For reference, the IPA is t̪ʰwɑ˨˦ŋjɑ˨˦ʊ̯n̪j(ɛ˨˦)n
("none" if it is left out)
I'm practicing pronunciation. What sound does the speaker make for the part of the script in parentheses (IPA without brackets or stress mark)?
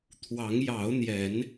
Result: ɛ˨˦